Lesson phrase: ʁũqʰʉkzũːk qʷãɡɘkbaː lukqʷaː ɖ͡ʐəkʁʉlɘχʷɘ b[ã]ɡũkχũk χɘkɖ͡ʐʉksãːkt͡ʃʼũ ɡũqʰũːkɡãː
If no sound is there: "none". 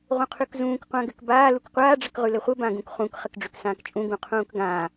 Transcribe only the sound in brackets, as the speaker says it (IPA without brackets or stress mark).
ã